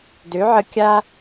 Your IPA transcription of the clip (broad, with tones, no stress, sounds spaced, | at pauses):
d ø˩˥ ʕ ə˧ kʲ a˥